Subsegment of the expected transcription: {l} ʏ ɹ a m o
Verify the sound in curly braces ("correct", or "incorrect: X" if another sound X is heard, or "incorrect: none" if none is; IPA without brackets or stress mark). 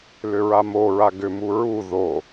correct